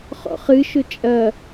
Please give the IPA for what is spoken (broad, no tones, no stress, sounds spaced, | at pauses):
χ ɔ̰ χ ɨ ʃ ʊ t͡ʃʼ ɐ